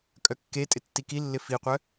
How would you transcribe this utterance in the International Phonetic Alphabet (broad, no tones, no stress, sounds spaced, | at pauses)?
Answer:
kʼ œ kː e tʼ ɪ tː i k i lː ɪ f i qʷ œ